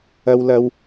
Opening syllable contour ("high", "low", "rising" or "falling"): high